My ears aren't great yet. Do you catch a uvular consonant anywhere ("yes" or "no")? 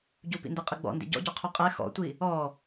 yes